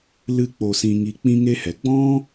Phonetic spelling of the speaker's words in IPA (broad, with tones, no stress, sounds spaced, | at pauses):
l ɨ˦ k͡p o˧ s ĩ˧ ŋ i˧ k͡p ĩ˦ ŋ e˦ h ɛ˨ ɡ͡b ɔ̃˦